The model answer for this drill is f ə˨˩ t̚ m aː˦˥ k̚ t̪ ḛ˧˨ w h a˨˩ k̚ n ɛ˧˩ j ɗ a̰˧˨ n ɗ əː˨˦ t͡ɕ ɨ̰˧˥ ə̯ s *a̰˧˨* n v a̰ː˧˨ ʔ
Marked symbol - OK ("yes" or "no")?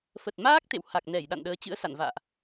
yes